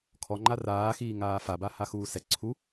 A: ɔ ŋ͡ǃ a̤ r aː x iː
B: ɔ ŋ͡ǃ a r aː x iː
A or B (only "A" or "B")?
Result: B